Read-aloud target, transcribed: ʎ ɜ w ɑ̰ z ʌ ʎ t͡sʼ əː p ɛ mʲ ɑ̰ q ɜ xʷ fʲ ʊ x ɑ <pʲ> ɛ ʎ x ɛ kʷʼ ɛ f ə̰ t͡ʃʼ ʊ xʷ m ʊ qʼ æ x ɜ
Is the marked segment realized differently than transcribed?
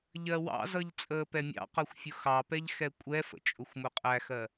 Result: yes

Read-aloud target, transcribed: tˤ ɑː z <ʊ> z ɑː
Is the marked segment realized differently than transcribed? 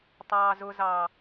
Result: no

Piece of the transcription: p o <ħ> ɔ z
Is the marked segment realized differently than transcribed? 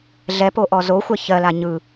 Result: yes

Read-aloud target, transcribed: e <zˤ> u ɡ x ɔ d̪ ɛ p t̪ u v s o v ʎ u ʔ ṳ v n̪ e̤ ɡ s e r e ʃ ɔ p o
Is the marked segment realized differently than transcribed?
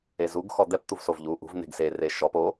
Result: yes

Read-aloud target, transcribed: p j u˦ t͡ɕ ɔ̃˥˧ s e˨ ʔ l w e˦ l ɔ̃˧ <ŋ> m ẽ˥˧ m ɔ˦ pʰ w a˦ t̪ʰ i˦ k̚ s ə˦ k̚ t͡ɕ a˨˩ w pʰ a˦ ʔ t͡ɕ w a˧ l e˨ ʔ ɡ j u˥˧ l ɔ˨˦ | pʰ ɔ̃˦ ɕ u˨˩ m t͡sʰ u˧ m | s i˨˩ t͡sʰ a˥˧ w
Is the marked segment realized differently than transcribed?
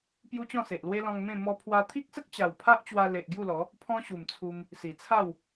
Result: no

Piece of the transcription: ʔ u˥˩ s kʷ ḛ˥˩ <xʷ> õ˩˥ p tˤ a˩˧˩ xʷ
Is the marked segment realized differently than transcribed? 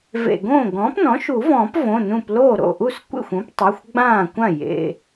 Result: no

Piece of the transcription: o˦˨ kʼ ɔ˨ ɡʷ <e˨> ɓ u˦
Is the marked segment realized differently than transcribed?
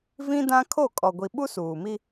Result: yes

